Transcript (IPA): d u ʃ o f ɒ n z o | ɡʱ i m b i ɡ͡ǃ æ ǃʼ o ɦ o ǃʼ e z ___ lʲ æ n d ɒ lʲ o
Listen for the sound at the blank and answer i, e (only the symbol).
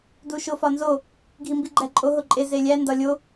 e